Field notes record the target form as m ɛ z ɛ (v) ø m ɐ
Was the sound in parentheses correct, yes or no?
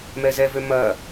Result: yes